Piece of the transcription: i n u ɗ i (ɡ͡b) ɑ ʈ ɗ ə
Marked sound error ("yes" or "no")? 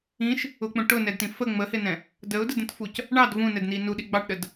no